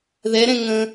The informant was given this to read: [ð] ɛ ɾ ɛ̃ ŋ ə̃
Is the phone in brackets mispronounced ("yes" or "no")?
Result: no